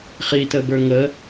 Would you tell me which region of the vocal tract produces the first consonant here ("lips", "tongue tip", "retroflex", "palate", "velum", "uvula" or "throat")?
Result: uvula